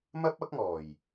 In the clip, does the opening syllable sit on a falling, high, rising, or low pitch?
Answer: high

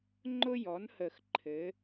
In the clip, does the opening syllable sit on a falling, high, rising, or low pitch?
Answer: high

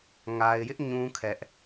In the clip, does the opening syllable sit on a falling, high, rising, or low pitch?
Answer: low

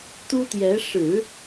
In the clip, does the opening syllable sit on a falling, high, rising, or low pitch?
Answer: high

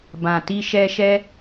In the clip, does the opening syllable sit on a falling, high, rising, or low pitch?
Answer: low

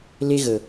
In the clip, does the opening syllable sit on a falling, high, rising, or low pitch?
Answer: high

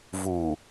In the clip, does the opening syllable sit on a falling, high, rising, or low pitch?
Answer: low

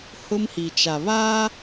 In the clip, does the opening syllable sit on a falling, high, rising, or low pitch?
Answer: high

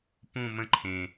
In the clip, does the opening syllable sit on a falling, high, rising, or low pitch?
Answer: low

